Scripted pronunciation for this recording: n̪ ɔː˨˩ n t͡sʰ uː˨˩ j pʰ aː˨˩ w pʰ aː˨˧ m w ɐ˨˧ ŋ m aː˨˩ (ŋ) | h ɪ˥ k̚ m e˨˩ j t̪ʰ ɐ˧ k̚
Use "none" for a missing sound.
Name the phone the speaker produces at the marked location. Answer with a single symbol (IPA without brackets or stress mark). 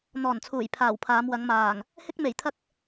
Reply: ŋ